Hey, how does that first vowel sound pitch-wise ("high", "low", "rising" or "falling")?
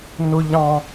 high